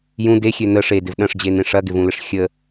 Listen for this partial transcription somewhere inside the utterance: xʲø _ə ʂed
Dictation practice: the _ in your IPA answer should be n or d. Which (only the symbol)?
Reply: n